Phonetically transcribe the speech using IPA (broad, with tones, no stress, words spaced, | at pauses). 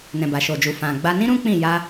nɛ̃˨ba˨ʃo˨d͡ʒu˨ fã˨ɡ͡ba˧ nĩ˦ɾũ˦ k͡pĩ˦˨ ja˧